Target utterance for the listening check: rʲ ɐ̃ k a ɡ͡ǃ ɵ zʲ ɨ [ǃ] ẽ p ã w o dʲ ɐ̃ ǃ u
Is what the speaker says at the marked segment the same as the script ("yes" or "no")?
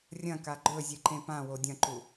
yes